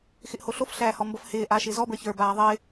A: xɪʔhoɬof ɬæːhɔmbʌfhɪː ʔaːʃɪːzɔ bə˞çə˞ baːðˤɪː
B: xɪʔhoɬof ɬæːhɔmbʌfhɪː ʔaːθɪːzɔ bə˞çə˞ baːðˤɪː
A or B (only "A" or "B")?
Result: A